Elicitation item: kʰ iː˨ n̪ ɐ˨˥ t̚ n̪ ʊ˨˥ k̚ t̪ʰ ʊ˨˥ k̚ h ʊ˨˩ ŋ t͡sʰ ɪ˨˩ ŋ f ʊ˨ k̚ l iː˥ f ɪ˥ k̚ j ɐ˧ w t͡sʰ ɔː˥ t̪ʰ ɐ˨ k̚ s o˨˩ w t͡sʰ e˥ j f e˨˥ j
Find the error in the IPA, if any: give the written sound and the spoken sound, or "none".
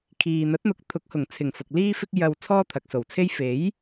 none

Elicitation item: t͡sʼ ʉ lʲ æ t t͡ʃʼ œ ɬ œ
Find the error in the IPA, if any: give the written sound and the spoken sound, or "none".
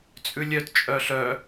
æ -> œ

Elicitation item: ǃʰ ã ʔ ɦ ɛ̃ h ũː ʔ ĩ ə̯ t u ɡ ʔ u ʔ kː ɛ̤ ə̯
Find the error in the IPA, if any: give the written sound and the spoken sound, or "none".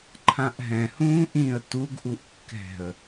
none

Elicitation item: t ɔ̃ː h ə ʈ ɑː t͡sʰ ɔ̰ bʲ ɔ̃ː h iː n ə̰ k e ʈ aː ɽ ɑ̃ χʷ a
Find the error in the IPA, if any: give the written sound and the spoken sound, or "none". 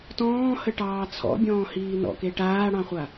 ə̰ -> ɔ̰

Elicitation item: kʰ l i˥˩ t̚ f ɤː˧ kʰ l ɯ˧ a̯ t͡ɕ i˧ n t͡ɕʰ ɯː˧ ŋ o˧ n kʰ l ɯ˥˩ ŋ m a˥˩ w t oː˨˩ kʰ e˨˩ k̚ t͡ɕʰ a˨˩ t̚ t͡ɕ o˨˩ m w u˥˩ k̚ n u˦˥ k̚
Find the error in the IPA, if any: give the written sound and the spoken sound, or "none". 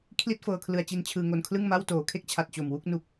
e˨˩ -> e˥˩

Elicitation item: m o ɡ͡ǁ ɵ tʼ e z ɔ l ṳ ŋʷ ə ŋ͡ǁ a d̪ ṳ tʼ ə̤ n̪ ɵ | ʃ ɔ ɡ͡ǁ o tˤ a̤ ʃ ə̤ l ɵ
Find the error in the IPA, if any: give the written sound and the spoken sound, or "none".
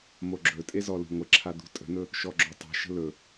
ŋ͡ǁ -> ǁʰ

